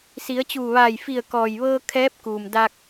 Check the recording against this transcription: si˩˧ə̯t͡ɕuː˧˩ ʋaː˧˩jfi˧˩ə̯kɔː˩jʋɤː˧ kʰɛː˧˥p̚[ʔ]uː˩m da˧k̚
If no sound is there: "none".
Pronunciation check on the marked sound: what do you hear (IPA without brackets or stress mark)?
k